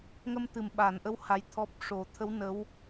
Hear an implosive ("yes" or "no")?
yes